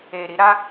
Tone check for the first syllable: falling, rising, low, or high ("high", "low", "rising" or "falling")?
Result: low